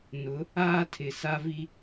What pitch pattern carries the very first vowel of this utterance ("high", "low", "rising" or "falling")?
rising